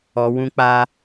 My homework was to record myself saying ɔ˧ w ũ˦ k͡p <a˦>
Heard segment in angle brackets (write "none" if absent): a˦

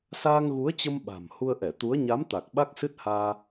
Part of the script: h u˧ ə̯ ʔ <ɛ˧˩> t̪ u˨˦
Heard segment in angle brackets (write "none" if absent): ɛ˧˩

